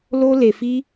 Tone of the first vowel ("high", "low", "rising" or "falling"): high